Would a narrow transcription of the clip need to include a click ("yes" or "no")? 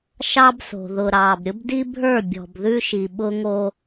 no